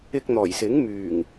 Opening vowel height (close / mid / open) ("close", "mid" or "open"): close